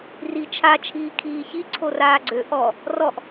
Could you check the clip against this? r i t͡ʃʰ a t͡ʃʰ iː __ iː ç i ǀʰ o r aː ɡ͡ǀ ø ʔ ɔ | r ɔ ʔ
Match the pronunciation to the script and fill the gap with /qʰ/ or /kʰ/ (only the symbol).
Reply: kʰ